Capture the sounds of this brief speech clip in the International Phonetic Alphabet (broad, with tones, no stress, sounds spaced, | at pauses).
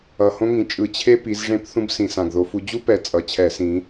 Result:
ʌ˨˩ h õ˥ ŋ ĩ˨˩ t͡ʃʼ ɯ˧˩˧ t͡ɕʰ e˥ p i˨˦ z ʐ ẽ˥ p θ ũ˥ b s ĩ˨˩ s ã˨˩ ɡ ð o˨˦ f u˨˦ d͡ʑ u˥ p ɛ˨˦ t͡sʼ ʌ˨˩ t͡ɕʰ ɛ˧˩˧ s ĩ˨˦